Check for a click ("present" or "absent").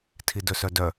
absent